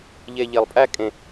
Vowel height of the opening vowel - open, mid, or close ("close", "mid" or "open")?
mid